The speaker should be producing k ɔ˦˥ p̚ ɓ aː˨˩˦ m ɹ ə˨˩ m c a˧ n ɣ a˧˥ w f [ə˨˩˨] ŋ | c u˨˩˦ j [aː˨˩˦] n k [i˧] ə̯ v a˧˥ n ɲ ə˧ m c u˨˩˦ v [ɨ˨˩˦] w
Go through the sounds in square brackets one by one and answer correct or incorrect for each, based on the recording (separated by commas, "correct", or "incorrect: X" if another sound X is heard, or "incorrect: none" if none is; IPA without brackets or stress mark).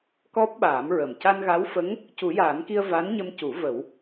incorrect: ə˧˥, correct, correct, incorrect: ə˨˩˦